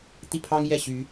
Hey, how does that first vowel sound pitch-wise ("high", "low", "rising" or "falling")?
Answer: falling